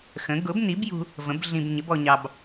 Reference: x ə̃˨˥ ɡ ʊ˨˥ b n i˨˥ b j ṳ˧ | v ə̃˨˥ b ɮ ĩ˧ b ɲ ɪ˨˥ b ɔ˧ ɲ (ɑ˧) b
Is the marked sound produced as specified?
yes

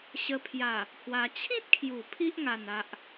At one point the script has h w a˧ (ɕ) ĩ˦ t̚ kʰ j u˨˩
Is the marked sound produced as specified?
no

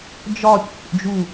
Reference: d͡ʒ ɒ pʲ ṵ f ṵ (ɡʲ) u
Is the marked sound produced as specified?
no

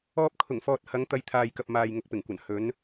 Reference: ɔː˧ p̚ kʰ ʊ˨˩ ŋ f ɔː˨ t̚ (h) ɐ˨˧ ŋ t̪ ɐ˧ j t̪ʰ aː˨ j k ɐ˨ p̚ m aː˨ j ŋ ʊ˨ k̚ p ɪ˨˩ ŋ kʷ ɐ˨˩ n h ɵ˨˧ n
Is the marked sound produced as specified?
yes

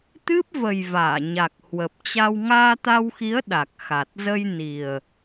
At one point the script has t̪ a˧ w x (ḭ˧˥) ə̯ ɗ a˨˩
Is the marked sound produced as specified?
no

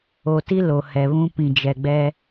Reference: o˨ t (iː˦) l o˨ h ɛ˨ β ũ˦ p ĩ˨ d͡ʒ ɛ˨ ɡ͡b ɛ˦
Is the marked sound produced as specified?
no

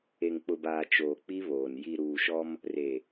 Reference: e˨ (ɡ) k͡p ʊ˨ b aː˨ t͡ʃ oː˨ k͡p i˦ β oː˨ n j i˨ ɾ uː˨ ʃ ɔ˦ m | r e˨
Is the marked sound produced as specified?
no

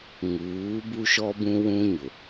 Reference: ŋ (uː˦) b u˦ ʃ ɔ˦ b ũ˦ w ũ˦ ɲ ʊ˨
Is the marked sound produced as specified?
no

